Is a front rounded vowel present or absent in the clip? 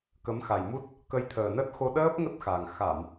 absent